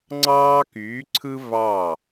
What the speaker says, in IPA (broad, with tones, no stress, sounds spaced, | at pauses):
ŋ͡ǀ ɑː˦ k yː˨˦ ǀʰ ɯ˦ v ɑ˥˩